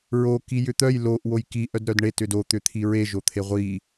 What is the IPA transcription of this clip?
ɹ o k i j ʏ t̪ œ j l o ʔ w o j k i ʔ œ d ɾ œ d ɳ e t ʏ d o t̪ ʏ t̪ʰ i ɹ e ʒ o t̪ʰ e ʁʷ i

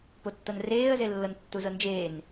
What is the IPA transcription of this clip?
p o tː ɤ n r eː ə̯ z e lː ɤ n tː u z ɤ n d͡ʒ eː n

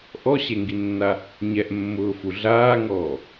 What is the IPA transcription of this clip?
ʔ ɔ ɕ e ŋ ɡ i nː a | ɲ ɛ ʔ mː ʊː f u ɮ aː ŋ ɔː

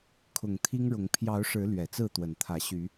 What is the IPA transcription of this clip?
kʰ ʊ˨˩ ŋ t̪ʰ i˦ ŋ ɻ ʊ˨˦ ŋ pʰ j ɑ˨˦ ʊ̯ ʂ ɻ̩˨˦ l ɥ ɛ˨˩ t͡s ɹ̩˥˨ t̪ w ə˨˩ n t̪ʰ ä˨˦ ɕ y˨˦

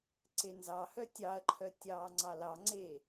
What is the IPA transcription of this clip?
ǀ e n z ɑ h œ tʲ ɑ ɐ̯ ǃʰ œ tʲ ɑː ŋ͡ǀ ɑ l ɑ ŋ͡ǀ e

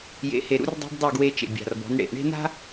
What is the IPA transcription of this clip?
j ḛ˨ h e˨ ɾ ṵ˦ r dˤ e̤˦ b dˤ u˦˨ ɡ w e˦ t͡ʃ ḛ˨ bʲ a̤˨ r b ɔ̤˨˦ n ɽ ḛ˨ ʔ ɳ e̤˦ n a̤˦

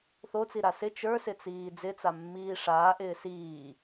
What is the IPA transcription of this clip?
θ o t͡s i ɾ a s ɪ t͡ʃ ə˞ s ɪ t͡s iː d͡z ɪ t͡s a mː iː ʂ aː ʔ ɪː s iː

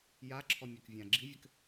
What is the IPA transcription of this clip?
j a ǁʰ ɔ mʲ ɘ k vʲ ã ɡ͡ǁ i vʲ ɘ k

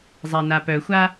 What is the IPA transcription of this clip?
zˤ ɛ n a p œ xʷ a

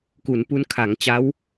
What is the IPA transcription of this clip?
k u˩˦ n p u˦˥ n kʰ a˩˦ ŋ t͡ɕ a˦˥ w

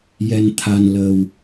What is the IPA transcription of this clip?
j ɛ˧ n t̪ʰ a˧ n l ə˧ w

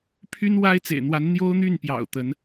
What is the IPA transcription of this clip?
pʰ y˥ n w a˥ ɪ̯ t͡s ḛ˨˩ ɪ̯ n̪ w a˧˥ n n̪ j o˥ ʊ̯ n̪ y˥˩ n p j ɑ̰˨˩ ʊ̯ t̪ ə˧˥ n

